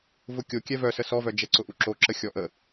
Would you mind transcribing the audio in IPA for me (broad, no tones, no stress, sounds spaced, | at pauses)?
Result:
v ʊ kʲ o kʲ ɛ v œ s ə s ɔ v œ d͡ʒ ɛ ǀ ʊ ʔ u ǁ o ǁ ə xʲ ɔ ʔ ə